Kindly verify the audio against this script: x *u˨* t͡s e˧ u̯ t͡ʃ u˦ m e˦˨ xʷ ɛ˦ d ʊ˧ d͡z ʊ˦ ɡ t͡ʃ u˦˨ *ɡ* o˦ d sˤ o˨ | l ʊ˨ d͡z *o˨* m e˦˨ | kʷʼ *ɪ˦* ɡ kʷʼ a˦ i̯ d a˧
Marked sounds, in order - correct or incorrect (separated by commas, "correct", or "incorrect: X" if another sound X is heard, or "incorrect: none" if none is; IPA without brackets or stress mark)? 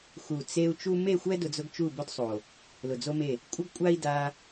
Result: correct, incorrect: b, incorrect: o˦, correct